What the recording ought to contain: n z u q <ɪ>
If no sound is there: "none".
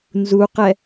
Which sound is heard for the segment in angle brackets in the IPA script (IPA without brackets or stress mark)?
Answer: ɛ